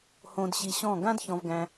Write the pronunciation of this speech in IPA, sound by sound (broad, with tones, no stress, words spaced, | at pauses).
hõ˧dɕi˧ɕɔ̃˦˨ ɡã˦dçɔ̃˧vɡæ̃˧